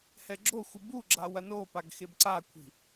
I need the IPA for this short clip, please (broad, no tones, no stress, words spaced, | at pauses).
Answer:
hɛɡ͡ǁoxʷɨ buɡ͡ǁa wɐnopaɡ xebǀakʷʰi̤